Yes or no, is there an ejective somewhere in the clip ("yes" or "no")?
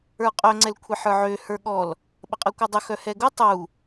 yes